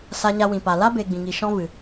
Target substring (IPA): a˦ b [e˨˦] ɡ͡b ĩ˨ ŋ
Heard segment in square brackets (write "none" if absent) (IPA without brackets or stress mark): e˨